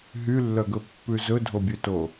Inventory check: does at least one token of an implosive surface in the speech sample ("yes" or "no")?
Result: no